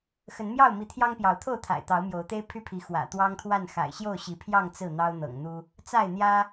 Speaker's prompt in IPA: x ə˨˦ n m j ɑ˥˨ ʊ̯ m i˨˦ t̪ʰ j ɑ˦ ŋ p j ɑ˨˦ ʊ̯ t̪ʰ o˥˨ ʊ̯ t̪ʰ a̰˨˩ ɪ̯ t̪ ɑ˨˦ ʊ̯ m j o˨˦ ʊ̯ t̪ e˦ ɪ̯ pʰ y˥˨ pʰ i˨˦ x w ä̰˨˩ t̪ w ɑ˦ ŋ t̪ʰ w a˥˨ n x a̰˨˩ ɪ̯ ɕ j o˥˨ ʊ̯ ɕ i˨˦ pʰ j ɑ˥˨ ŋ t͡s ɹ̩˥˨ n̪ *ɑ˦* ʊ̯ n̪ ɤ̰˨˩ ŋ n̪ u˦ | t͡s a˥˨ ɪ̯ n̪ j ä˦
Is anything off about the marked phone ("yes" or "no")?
no